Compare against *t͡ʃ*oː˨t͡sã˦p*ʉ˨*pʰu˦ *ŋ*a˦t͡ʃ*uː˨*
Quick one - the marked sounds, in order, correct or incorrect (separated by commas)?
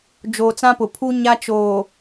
incorrect, incorrect, incorrect, incorrect